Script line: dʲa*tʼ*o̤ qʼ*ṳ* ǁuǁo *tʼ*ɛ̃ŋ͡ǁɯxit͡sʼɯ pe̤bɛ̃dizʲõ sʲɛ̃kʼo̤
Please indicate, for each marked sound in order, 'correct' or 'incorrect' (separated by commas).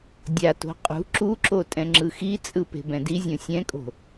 incorrect, correct, correct